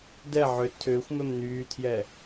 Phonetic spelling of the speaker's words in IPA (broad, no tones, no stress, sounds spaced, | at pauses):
d ɛ ʕ ʏ tʰ ʏː xʷ m ɛ m n yː tʰ j ɛ